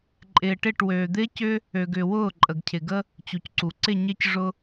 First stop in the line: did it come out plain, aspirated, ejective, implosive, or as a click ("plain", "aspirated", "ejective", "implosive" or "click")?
click